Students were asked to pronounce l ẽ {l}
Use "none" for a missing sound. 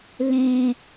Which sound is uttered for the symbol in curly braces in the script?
none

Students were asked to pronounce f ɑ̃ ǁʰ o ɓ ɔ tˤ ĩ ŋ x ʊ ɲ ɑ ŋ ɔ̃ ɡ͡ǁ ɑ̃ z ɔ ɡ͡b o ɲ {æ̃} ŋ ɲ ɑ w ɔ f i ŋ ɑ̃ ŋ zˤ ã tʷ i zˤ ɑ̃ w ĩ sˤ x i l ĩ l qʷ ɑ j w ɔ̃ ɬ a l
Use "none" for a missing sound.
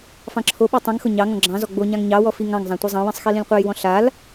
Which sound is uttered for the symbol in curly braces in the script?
ã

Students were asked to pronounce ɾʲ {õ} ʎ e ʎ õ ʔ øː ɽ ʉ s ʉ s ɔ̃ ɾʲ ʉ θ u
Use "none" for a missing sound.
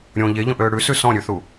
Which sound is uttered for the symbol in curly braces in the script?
õ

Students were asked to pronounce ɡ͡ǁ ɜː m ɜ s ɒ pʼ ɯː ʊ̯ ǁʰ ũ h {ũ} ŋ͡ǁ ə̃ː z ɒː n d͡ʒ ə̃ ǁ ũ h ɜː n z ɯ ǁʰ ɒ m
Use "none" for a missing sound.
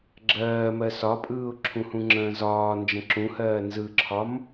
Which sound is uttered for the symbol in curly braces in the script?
ũ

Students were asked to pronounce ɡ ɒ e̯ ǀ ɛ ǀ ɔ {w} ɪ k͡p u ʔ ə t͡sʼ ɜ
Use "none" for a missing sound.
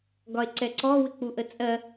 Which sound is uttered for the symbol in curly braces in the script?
w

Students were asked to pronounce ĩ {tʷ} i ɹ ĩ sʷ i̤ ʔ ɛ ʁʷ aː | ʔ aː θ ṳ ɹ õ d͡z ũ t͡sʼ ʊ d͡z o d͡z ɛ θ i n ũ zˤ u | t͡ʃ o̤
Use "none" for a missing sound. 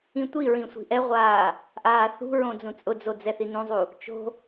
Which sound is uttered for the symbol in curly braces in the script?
tʷ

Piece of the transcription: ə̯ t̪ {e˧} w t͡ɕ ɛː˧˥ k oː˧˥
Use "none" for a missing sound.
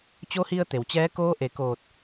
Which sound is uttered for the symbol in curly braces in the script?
e˩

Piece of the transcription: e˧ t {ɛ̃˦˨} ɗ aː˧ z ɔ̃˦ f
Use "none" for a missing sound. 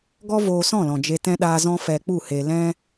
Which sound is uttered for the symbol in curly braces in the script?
ɛ̃˧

